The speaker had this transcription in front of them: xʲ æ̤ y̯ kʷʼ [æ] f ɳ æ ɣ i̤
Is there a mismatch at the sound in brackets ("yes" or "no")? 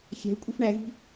yes